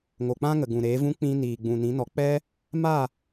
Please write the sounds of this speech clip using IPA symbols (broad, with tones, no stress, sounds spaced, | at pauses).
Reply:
ŋ o˨ k͡p ã˦ ŋ ə˨ ɡ ũ˨ ɾ e˨˦ v ũ˦ k͡p ĩ˧ n iː˨ ɡ͡b ũ˨ n ĩ˨˦ n ɔ˨˦ k͡p ɛ˦ | m a˦˨